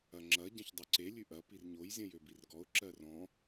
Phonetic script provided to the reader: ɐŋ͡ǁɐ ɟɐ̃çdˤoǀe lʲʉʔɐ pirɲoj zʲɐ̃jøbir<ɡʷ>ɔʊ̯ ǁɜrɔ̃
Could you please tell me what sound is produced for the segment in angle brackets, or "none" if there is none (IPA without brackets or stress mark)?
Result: ɡ